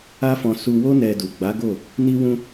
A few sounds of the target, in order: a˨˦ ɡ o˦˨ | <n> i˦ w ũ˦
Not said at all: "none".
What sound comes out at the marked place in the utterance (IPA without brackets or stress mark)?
n